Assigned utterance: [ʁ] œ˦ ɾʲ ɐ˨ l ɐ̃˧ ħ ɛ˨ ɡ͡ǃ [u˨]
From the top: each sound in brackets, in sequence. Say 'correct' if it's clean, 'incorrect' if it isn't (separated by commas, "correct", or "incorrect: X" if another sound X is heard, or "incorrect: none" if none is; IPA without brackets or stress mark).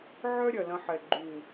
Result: incorrect: ʕ, correct